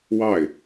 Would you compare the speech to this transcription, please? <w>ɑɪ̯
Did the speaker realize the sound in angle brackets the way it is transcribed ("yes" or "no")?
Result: yes